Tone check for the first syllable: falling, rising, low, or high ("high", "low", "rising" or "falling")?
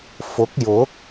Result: rising